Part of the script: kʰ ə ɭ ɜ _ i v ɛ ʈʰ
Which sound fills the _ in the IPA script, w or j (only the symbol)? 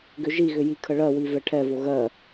w